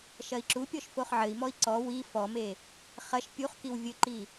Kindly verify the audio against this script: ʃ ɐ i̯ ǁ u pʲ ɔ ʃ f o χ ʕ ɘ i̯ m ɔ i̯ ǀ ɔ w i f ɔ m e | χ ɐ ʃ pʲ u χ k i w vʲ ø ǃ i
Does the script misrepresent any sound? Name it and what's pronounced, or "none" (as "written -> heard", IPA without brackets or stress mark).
ø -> ɘ